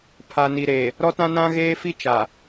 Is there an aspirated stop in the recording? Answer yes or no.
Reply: yes